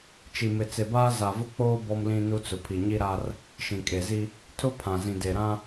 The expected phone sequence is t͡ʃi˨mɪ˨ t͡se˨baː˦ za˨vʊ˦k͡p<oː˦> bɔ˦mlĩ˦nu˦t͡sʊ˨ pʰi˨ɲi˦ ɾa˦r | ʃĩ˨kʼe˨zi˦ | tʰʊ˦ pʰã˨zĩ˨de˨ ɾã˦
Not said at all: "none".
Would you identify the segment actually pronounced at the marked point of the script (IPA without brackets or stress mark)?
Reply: oː˦